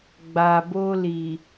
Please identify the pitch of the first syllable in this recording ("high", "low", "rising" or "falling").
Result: low